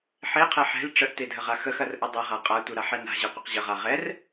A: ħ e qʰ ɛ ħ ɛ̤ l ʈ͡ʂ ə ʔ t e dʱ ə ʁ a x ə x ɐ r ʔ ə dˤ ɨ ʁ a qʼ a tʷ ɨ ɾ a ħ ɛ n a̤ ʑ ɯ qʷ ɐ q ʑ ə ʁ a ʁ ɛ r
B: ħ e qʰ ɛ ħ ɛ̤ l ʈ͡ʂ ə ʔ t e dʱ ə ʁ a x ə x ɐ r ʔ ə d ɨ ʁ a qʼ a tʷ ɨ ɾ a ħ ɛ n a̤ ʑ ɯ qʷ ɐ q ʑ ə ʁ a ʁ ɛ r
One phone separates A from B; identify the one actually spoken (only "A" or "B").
A